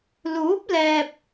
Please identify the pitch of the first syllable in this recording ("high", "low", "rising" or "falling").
rising